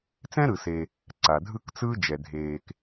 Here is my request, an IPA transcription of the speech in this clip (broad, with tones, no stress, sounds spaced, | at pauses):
t͡s ɛ̃˥ ɾ ɯ˩ s e˩ | ǀ a˩ dʱ ɯ˥ k t͡s ɯː˥ d͡ʒ ɛ˩ dʱ eː˩ k